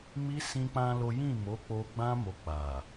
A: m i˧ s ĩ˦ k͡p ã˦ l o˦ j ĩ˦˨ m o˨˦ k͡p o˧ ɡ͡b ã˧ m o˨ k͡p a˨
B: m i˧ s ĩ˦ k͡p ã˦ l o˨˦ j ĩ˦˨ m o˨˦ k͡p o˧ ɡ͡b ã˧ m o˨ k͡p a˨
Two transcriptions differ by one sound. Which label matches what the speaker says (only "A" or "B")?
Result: A